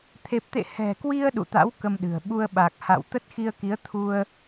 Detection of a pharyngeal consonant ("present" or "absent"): absent